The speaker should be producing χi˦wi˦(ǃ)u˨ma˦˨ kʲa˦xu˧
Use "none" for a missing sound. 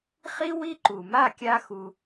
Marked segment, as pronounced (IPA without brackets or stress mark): ǃ